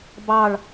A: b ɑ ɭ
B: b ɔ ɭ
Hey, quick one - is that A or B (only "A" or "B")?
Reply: A